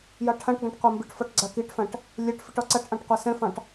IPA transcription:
jɑʈʰãʈɡɑ̃ʈ qʷambiʈfɒʈ ɡ͡ǀakiʈfãʈ | lʲɛʈ fiʈɒǀaʈʔɑ̃ʈ qʷasɛ̃fɑ̃ʈ

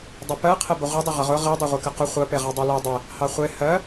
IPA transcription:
dˤəpɜ qʰɛbəʁʷedˤʊ ʁəʁʊ ʁi dˤeʁʷekəqʊ χʷɜpe ʁɑdˤɛle dˤɛ | hɑχʷe hɜ

